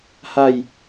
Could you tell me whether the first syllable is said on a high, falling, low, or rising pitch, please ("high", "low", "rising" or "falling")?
falling